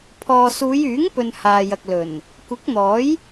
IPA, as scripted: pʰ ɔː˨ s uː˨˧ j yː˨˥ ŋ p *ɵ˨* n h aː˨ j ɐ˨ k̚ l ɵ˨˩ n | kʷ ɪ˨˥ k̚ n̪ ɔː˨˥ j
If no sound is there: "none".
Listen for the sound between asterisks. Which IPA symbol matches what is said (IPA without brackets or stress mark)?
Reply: ɵ˨